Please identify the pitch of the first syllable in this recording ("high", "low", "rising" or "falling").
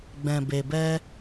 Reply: low